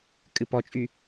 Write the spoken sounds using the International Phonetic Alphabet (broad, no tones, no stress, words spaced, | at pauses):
kʼɨpɔt͡ʃʼy